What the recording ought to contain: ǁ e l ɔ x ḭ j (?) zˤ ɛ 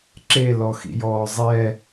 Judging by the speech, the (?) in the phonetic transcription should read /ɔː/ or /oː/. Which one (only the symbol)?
ɔː